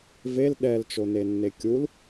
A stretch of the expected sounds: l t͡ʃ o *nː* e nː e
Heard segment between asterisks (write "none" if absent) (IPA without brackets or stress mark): n